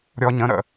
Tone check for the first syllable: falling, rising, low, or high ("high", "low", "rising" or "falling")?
low